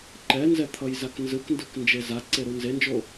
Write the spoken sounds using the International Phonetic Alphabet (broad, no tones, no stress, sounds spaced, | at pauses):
ǃ ɛ n z ɛ t̪ʰ ʌ j z a k n z ɯ k n d ɯ k n d͡ʒ e z a ǀ e ɾ u n z e n d͡ʒ o